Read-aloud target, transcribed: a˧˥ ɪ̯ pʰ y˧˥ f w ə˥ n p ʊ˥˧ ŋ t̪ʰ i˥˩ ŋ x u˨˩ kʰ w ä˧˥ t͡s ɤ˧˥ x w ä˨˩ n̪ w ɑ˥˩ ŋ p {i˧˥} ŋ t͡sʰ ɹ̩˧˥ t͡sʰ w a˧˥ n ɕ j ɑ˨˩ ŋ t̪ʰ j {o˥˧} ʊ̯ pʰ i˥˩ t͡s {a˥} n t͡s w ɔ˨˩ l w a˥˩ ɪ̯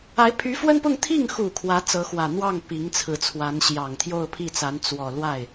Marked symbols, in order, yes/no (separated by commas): yes, yes, no